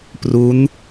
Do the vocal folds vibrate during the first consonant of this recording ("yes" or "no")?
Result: no